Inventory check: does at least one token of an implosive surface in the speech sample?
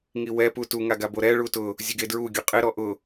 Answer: no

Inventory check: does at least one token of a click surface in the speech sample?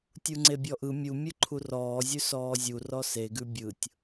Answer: yes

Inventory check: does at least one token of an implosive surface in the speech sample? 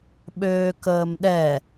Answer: yes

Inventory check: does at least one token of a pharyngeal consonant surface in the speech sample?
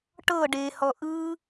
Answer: no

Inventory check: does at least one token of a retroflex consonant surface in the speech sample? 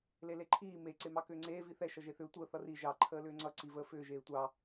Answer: no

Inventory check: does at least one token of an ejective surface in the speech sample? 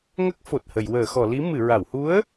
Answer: no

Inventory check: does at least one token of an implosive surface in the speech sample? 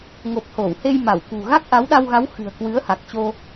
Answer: yes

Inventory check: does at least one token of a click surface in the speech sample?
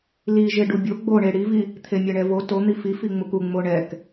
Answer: no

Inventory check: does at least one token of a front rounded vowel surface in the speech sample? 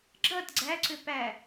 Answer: yes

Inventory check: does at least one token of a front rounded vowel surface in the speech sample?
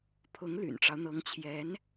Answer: yes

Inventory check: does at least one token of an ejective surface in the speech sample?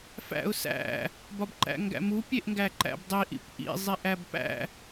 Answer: no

